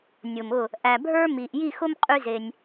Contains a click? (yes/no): no